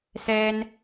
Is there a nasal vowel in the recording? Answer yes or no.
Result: no